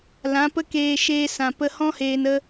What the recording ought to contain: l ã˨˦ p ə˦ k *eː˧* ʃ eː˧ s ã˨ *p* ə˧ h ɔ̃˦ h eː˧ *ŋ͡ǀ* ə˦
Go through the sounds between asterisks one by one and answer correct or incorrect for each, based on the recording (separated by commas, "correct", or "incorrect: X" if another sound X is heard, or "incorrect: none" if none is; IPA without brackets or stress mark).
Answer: correct, correct, incorrect: n